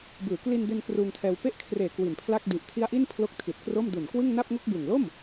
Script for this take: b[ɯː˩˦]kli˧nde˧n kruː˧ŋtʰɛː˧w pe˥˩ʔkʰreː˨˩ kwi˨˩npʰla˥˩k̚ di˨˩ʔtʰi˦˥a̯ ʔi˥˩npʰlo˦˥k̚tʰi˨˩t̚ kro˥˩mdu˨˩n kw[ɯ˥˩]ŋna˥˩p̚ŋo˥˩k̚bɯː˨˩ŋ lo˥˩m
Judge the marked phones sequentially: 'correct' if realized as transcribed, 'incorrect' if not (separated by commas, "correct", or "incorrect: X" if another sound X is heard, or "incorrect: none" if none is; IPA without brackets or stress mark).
correct, correct